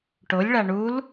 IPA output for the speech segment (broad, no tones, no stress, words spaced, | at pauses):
ʈolʲɭa ɳul